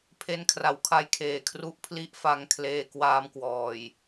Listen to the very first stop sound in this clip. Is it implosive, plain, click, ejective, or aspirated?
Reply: aspirated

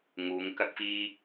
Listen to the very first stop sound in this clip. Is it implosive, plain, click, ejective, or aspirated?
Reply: plain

